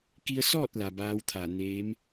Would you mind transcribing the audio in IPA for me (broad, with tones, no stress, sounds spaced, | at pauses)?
k i˧ ə̯ s ɔː˥˨ t̚ l a˩ b aː˧˥ w t̪ʰ a˧˩ n eː˧˥ m